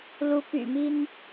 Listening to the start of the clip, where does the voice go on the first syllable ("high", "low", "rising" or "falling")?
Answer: rising